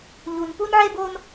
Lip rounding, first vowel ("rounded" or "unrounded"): rounded